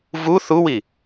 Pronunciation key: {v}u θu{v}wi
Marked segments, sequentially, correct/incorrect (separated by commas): correct, incorrect